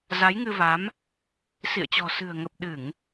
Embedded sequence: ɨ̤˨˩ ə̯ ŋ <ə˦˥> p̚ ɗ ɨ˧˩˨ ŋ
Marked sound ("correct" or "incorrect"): incorrect